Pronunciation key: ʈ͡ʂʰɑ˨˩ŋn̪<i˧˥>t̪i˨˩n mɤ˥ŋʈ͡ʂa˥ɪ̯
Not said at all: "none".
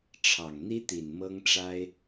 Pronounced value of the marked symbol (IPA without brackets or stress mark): i˥